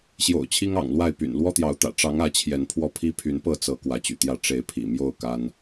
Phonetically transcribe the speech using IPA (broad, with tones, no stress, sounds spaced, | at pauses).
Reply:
ɕ j o̰˨˩ ʊ̯ t͡ɕʰ i˦ ŋ ɑ̰˨˩ ŋ l w a˥˨ ɪ̯ p y̰˨˩ n l w ɔ˦ t̪ j ɑ˨˦ ʊ̯ t̪ ä̰˨˩ ʈ͡ʂ ɑ˨˦ ŋ ä˨˦ t͡ɕʰ j ɛ˨˦ n pʰ w ɔ˥˨ pʰ i˦ pʰ y˨˦ n p ɤ˥˨ t͡s ɤ˨˦ k w ä˨˦ t͡ɕ y̰˨˩ t̪ j ä˥˨ ʈ͡ʂ e˨˦ ɪ̯ pʰ ḭ˨˩ m j o˥˨ ʊ̯ k a˦ n